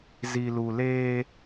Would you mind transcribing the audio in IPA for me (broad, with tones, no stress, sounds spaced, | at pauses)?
z i˨ l u˨ l eː˦